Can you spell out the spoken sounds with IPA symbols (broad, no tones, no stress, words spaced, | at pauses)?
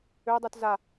ødˤut za